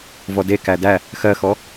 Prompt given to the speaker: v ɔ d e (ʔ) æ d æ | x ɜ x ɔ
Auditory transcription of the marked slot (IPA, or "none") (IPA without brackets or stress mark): k